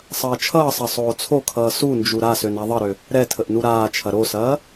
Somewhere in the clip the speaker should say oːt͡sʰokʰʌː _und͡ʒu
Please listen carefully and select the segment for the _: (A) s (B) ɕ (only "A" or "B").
A